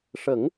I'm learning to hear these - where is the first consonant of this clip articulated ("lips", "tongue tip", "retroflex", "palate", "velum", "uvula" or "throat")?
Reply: retroflex